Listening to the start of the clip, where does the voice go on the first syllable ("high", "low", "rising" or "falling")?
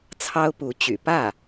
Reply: high